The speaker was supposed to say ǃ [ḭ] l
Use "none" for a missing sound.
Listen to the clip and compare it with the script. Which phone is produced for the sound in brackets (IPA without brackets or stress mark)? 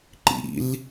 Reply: ḭ